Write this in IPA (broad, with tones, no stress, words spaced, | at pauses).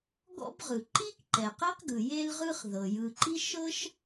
ɡɔ̰˥bʁɯ˩ ǃi˥k ǃɛ˩qe˥qɡɯ˩ je˥lʁɯ˥χ ðɤ˩ jɯ˩ǃi˥ ʃɤ˥ʃ